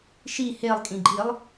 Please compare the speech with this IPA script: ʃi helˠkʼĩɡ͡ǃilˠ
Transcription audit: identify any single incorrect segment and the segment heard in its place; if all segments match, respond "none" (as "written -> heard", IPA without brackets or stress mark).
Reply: none